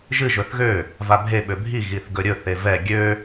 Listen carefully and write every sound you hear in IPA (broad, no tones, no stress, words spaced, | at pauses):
ʒɨ ʒɵθɣø | vabʱe ɓøbʱi ɣiθɡɵɾʲɵ θevɛ ɡʲø